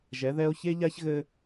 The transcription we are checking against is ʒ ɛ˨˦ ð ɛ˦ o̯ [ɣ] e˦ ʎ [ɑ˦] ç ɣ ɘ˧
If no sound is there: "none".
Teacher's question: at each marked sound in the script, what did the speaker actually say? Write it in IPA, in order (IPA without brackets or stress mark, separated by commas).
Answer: ç, a˦